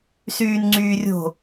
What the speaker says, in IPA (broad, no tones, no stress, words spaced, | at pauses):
syːnŋ͡ǀyːrʲo̤